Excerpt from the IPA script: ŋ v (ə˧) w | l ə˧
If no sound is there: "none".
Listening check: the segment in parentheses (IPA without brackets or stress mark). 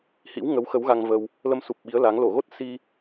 ə˧